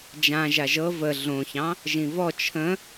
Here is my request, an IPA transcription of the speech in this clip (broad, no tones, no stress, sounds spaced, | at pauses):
d͡ʒ ã ʒ a ʒ ɤ v ə ɮ õ ç ɑ̃ | ʒ ĩ v ɔ t͡ʃʰ ə̃